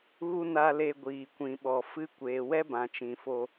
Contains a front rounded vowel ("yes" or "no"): no